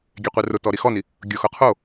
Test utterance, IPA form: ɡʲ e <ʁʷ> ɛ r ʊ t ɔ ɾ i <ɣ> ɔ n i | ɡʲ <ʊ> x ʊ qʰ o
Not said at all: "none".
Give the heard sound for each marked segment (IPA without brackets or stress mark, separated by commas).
qʷ, x, ʊ